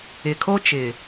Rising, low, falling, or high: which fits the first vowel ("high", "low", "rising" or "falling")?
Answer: low